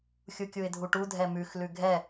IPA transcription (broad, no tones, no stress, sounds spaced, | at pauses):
xʲ u kʲ u ɪ̯ dʱ u ʈ u dʱ ɛ m ʉ x l ʉ ɡʱ ɛ